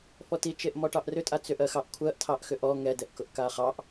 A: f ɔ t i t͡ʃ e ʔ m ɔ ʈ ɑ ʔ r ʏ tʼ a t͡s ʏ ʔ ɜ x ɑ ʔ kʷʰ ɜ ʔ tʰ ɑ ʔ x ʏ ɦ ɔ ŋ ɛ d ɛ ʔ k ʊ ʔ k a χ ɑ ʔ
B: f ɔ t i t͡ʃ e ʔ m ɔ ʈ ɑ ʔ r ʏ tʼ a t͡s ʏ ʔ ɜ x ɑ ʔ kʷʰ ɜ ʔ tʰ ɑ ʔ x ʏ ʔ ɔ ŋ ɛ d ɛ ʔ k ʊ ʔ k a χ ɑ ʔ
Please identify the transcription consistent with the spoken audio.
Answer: B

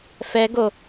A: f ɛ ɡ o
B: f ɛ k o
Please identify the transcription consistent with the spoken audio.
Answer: A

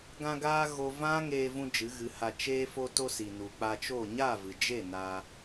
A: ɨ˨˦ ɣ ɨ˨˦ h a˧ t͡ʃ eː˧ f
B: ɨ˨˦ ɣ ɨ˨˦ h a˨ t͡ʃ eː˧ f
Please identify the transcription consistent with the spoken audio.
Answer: A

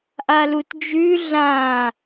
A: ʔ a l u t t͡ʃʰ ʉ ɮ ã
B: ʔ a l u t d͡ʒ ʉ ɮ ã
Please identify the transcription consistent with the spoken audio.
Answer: B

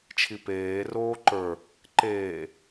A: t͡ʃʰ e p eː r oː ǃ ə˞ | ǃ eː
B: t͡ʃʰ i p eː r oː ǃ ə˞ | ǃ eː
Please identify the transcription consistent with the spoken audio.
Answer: B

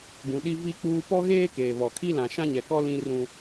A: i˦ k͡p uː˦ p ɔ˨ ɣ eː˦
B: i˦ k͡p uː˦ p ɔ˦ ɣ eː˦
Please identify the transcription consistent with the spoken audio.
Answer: B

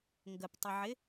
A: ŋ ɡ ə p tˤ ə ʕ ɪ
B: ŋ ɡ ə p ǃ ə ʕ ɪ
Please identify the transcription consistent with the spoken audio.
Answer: A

